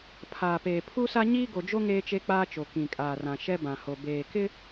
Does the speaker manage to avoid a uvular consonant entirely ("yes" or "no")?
yes